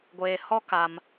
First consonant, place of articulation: velar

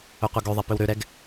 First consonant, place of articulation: uvular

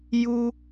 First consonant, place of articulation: palatal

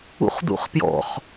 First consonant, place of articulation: uvular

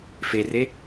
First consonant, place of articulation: labial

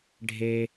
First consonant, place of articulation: retroflex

